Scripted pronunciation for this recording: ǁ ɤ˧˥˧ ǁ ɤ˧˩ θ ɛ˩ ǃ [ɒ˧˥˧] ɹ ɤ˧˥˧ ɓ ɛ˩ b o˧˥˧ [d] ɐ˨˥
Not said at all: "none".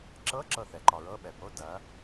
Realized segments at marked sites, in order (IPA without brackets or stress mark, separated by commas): ɒ˩, d